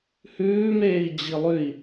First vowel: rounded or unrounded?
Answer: rounded